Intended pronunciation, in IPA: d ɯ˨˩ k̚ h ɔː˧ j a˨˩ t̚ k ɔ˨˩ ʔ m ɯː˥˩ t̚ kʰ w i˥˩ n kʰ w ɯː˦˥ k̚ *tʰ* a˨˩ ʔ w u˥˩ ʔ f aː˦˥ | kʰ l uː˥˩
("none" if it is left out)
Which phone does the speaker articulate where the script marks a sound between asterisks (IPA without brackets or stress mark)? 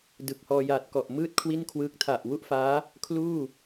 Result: tʰ